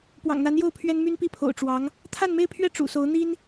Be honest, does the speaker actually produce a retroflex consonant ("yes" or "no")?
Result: yes